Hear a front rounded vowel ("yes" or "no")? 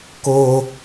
no